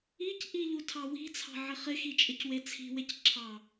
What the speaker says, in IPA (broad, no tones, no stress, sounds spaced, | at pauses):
i c ʔ i ʎ u tʰ ɑ w i̤ t͡sʰ ɑ̤ ʕ ɪ χ ɪ x i t͡ʃʼ ɪ c w e t͡sʰ i̤ w e c ǁʰ ɑ